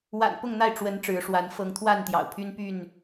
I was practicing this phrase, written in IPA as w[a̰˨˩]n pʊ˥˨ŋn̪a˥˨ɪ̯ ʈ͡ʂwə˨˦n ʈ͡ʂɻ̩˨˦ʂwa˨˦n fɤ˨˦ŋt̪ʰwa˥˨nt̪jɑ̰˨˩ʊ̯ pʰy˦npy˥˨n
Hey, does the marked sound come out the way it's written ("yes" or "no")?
yes